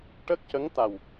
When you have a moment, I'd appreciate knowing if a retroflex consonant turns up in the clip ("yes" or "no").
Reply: yes